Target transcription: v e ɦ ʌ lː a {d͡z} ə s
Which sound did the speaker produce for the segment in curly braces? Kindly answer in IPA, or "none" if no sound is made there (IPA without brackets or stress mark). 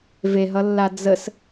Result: d͡z